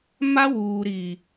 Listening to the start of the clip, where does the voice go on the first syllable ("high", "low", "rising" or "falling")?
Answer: high